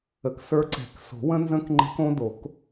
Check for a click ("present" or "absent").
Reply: present